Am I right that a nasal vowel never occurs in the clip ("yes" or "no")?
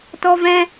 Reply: no